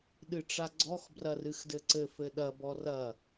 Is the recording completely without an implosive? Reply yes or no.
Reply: no